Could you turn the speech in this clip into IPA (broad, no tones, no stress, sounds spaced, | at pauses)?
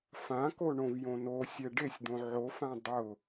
f ã k o ɳ õ v j õ n o sʲ ɛ ɖ e sʲ d̪ õ ʕ o f ã dˤ ʊ